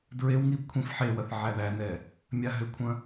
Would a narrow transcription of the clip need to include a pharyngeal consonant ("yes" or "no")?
yes